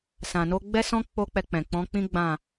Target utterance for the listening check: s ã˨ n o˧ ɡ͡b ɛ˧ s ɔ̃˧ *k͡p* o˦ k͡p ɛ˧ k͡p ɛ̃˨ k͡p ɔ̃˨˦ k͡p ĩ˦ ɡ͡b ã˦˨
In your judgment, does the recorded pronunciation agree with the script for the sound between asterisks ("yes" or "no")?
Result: yes